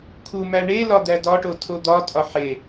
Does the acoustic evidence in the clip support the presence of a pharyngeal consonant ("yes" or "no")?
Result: yes